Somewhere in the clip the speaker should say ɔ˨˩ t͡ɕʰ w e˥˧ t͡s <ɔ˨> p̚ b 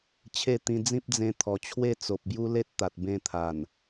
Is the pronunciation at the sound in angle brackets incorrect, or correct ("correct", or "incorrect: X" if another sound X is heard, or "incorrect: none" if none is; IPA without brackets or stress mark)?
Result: incorrect: o˨